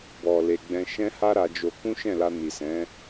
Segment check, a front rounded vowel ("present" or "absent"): absent